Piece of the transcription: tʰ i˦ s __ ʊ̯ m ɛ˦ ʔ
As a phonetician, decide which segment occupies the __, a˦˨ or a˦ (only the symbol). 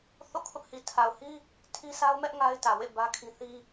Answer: a˦